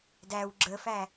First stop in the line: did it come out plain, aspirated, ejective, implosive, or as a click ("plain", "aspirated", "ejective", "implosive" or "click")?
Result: plain